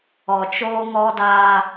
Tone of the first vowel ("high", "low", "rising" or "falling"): low